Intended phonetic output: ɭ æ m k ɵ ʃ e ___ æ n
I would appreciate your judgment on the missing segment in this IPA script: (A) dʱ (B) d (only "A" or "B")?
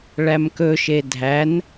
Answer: A